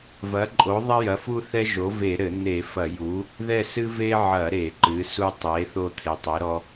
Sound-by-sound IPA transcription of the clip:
v ɐ˩˥ ǃʼ o˩˥ ðˤ ɐ˦ j ɐ˩˥ f u˦ θ ɛ˦ ʒ o˩˥ v e˧˩˧ ɾ ɘ˧˩˧ n̪ e˧˩˧ f ɐ˧˩˧ j u˩˥ | ð ɛ˦˨ s ɨ˦ v e˦ ʕ ɐ˧˩˧ ɾ e˧˩˧ ǃ ɨ˩˥ s u˦ tˤ e˩˥ θ o˦˨ t̪ʰ e˩˥ tˤ ɛ˩˥ ɾ ɔ˦

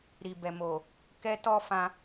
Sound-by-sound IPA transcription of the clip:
ɾ i˨ b ɛ˨ m o˨ | k ɛ˦ t ɔ˦ f ã˧

